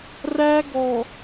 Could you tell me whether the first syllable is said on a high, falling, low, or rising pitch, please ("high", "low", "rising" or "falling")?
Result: high